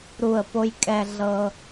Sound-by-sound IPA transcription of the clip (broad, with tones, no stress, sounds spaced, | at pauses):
ɾ u˧˩ ə̯ p o˧ j kʼ ɛ˧ ɮ ɤ˧